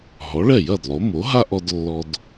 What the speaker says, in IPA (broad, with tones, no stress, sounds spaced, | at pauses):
ɦ ɔ˩˥ ɭ ɛ˥˩ j ɐ˥˩ d lˠ o˩˥ m o˩˥ ɦ a˥ ʔ ɔ˧ d lː ɔ˧ d